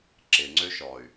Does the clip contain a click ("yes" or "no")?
yes